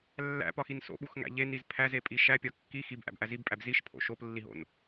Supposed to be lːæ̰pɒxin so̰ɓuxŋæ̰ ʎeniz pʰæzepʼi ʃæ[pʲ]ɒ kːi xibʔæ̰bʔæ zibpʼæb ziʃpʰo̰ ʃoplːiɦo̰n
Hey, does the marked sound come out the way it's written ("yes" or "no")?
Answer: yes